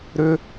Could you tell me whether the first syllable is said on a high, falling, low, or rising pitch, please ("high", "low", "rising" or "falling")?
high